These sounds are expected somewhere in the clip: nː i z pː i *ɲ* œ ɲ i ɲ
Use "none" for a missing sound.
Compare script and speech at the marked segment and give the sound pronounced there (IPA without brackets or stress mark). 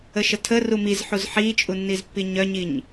ɲ